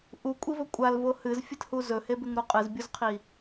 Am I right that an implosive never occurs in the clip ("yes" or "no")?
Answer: yes